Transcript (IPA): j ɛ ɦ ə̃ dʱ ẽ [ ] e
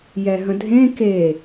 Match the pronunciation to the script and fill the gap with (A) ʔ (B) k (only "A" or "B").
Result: B